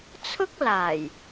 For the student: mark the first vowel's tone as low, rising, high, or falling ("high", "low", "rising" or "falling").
high